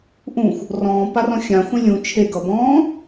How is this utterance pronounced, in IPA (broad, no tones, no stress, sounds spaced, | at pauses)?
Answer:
ʔ ũ xʷ | r ɔ̃ː p a r ɔ̃ xʲ ã xʷ ẽ lʲ ũ t͡ʃʰ e ɡ ʌ b ɔ̃ː